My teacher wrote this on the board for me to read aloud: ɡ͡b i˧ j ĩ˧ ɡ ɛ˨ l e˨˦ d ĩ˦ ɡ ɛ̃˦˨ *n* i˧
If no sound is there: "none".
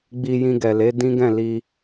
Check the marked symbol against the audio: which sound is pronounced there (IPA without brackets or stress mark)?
l